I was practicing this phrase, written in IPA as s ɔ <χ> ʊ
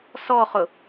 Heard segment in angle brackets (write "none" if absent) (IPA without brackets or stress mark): χ